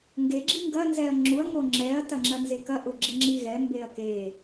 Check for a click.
present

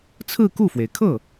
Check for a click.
absent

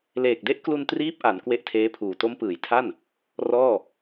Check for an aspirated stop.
present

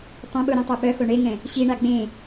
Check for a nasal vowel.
present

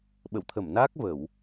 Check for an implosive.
present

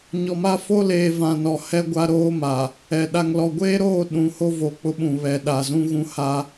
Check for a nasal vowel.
present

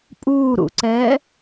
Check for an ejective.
present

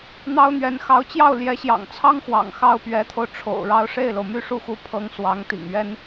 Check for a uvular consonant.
absent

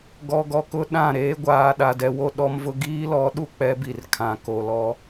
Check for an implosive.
present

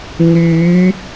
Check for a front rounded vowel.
present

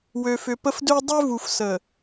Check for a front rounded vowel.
present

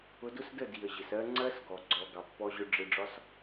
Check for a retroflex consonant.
present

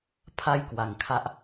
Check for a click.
absent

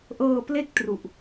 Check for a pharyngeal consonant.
absent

